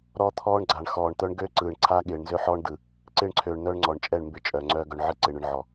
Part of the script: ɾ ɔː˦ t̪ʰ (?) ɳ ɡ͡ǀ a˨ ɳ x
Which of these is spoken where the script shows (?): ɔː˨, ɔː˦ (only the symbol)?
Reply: ɔː˦